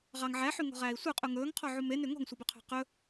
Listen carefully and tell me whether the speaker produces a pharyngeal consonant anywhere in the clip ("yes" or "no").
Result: yes